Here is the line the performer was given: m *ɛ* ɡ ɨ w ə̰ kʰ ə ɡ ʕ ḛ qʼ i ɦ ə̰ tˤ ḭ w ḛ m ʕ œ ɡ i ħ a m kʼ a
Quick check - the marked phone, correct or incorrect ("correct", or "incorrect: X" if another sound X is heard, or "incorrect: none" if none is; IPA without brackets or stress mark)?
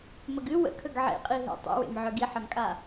incorrect: ə